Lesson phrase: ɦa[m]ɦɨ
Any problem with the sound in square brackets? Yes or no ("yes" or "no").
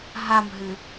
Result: no